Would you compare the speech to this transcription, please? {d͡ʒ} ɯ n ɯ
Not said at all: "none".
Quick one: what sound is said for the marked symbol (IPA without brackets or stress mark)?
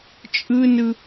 t͡ʃʼ